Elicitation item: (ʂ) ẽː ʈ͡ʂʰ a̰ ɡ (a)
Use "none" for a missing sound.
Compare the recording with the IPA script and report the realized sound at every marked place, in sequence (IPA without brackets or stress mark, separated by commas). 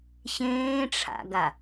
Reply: ɕ, a